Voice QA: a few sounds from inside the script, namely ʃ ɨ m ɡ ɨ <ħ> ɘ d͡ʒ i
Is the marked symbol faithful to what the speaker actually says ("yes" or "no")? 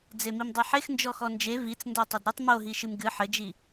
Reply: yes